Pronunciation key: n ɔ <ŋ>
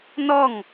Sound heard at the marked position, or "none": ŋ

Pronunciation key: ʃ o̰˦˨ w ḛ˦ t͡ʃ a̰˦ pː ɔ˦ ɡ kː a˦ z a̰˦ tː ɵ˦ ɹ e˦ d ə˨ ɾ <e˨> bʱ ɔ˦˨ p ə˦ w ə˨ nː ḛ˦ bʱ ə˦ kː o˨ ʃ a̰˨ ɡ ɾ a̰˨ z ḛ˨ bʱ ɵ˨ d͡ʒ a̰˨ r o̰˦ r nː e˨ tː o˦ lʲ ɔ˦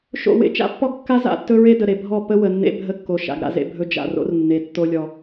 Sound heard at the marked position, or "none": e˨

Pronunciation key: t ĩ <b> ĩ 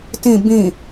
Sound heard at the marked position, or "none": b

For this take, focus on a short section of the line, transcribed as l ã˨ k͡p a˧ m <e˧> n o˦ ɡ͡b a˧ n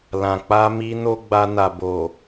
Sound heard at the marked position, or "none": i˧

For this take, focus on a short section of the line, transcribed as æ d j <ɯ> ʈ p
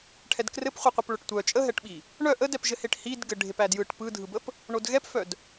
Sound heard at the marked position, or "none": ɯ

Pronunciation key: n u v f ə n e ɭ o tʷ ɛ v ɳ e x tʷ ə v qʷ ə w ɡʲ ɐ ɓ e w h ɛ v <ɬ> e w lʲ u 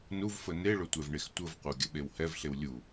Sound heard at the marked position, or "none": ɬ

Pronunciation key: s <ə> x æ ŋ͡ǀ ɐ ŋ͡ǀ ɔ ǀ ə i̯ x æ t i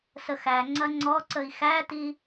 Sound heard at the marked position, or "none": ə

